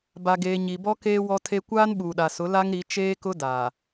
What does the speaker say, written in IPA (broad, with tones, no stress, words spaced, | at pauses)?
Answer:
ba˨ɡeː˨ ɲi˨bɔ˦keː˦ wɔ˦tʰe˦ kʷaː˦nɓuː˨ɗa˨ sʊ˨˦ la˦ŋɾi˨˦ t͡ʃeː˦kʊ˦ daː˨